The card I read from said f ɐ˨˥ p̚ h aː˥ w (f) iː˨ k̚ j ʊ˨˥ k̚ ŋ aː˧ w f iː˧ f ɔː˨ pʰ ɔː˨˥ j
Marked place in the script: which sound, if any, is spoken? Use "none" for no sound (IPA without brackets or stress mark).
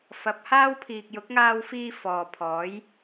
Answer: pʰ